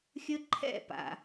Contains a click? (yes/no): yes